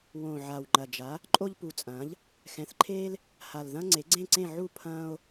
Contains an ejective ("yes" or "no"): yes